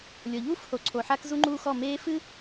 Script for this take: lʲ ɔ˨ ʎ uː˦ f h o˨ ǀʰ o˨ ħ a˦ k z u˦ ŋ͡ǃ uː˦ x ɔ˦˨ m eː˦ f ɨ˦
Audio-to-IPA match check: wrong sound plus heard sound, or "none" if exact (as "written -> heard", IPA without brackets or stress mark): none